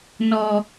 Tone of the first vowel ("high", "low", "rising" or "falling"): low